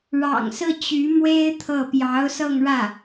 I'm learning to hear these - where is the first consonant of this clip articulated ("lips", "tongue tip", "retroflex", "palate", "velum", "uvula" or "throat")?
retroflex